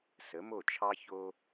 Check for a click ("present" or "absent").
absent